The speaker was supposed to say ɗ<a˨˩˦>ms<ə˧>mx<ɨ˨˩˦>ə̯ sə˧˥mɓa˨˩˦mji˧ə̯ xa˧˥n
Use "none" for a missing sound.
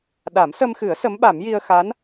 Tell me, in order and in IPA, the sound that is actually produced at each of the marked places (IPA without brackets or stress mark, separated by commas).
a˨˩˦, ə˧, ɨ˨˩˦